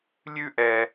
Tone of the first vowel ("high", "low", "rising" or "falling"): high